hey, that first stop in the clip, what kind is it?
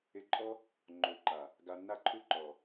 click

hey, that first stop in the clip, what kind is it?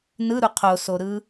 aspirated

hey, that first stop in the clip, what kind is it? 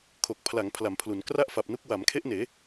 aspirated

